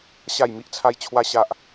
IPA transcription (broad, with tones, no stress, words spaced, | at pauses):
ɕa˥˧jmi˦ʔt͡sʰa˦j t͡ɕʰwa˦ɕa˦ʔ